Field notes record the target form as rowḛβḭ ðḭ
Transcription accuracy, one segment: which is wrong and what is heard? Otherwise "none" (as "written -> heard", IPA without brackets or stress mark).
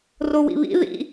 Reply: ḛ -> ḭ